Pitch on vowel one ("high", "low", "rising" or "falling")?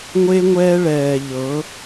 high